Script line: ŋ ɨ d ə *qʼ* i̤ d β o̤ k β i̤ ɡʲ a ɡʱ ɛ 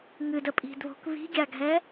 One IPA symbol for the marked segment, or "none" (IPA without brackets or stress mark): pʼ